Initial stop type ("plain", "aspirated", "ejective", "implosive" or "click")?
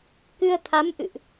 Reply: plain